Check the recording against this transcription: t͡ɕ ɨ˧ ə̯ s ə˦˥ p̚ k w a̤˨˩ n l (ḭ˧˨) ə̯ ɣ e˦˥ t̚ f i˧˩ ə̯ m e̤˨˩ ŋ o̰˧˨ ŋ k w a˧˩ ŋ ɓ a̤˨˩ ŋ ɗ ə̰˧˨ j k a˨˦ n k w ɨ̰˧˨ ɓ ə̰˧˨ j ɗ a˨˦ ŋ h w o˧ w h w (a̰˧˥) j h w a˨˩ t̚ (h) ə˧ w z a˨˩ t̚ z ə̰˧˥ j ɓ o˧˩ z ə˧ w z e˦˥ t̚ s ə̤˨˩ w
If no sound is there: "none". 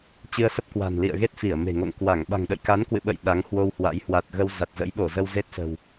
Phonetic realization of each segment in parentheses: ḭ˧˨, a̰˧˥, ɣ

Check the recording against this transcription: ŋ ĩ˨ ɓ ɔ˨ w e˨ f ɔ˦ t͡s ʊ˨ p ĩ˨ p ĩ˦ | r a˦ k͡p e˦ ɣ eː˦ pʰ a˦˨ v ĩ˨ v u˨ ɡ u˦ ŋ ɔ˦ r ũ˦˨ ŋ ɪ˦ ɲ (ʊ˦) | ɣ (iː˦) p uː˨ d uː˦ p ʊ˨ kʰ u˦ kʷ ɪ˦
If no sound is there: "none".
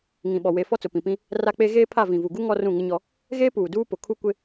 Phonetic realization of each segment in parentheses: ɔ˦, eː˦

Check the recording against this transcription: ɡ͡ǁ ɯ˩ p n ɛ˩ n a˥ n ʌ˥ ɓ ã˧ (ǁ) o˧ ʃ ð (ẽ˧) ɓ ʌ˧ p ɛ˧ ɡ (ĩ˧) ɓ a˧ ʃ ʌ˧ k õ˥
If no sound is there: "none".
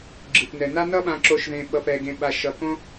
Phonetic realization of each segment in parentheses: ǁ, ẽ˧, ẽ˧

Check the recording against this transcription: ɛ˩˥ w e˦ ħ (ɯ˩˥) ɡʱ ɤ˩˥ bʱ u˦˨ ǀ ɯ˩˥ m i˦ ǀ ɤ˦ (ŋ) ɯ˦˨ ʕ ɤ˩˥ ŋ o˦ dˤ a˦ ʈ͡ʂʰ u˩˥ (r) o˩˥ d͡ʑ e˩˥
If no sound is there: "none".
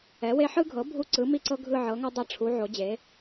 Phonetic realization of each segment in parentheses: ɯ˦, ɡʱ, ʕ

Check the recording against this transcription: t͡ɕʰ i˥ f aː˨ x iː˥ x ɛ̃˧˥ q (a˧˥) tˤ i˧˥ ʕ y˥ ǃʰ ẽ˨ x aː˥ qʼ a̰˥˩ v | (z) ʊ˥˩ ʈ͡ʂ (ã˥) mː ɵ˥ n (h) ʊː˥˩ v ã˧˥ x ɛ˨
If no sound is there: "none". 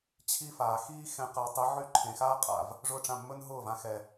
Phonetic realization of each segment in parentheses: a˧˥, ʐ, ã˥˩, ɦ

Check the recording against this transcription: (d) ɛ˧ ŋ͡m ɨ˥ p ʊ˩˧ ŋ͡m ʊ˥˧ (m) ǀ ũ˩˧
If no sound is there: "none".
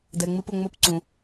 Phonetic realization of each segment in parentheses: d, p

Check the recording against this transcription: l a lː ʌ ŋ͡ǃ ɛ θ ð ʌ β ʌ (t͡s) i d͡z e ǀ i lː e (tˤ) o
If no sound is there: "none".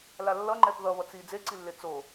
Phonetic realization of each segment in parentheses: t͡s, t͡s

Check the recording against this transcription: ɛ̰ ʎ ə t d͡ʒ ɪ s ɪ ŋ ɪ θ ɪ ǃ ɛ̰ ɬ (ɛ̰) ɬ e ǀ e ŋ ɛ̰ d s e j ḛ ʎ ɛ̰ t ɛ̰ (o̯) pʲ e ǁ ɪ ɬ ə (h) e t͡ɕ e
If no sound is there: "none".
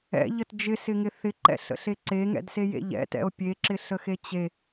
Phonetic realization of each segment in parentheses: ə̰, o̯, x

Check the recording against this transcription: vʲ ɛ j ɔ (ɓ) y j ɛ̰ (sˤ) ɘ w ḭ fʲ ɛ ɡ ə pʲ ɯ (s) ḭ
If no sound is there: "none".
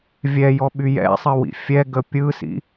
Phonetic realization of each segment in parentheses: ɓ, sˤ, s

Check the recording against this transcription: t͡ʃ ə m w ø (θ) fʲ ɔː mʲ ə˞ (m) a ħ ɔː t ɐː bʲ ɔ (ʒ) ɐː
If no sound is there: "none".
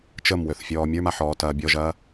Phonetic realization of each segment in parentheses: θ, m, ʒ

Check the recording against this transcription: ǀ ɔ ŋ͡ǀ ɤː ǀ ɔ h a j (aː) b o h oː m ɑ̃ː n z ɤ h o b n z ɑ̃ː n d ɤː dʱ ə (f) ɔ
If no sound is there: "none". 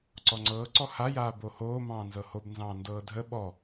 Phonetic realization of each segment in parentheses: aː, ɓ

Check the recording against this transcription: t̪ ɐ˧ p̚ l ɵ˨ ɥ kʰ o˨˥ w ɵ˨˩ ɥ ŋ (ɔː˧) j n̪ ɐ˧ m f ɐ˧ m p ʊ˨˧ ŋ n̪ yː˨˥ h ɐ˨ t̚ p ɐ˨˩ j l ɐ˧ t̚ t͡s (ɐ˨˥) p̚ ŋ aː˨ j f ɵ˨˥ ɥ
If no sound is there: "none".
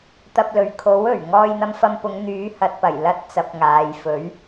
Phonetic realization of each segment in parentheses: ɔː˧, ɐ˨˥

